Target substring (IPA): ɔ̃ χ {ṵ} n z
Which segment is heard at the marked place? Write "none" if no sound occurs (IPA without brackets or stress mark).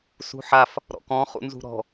ṵ